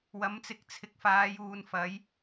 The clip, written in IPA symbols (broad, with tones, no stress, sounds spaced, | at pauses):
w ɐ˨˥ m t͡s ɪ˨ k̚ t͡sʰ ɪ˨ k̚ f aː˨˧ j uː˨ n f ɐ˨˥ j